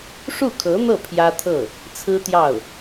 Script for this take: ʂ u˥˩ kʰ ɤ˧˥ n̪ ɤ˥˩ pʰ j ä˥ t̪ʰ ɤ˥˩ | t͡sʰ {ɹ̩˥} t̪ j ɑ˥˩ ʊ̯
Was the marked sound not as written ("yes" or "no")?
no